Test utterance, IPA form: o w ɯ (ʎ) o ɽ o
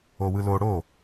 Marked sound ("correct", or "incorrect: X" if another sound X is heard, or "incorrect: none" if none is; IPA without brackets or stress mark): incorrect: l